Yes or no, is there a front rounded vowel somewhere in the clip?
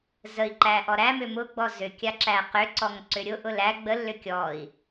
yes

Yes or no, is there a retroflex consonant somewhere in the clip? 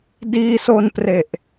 no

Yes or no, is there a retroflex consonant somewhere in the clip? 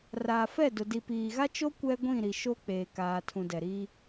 no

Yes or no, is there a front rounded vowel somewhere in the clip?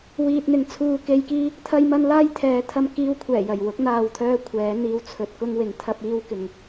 yes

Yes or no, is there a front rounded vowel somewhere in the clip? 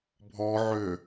yes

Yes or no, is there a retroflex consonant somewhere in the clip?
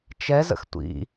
no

